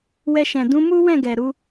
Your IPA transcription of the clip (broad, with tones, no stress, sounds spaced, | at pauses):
w ɛ˧ ʃ ɛ̃˨ d ũ˨˦ m u˦ w ɛ̃˦˨ ɡ ɛ˨ ɾ u˨˦